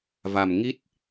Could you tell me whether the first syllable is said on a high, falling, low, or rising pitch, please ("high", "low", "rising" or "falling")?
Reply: low